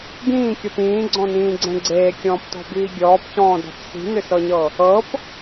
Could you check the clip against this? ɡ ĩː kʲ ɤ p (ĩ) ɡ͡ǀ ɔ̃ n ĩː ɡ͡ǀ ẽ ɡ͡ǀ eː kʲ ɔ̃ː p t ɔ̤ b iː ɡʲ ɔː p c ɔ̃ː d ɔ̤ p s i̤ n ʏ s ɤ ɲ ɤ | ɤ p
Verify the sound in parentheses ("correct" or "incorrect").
incorrect